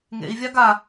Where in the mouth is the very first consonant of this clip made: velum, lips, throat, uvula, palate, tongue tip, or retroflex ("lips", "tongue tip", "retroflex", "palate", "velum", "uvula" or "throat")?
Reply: velum